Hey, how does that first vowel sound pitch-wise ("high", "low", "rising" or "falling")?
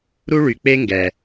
high